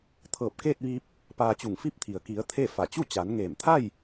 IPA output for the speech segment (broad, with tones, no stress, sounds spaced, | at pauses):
t̪ʰ ɤː˧˩ p̚ k eː˥˨ t̚ ʋ iː˧ p̚ | p aː˧ t͡ɕ u˧˩ ŋ f i˥˨ p̚ t̪ʰ i˩ ə̯ k i˩˧ ə̯ t̪ʰ e˥˨ f a˧˩ t͡ɕ u˥˨ t͡ɕ a˩˧ n ŋ eː˧˩ m t̪ʰ a˥˨ j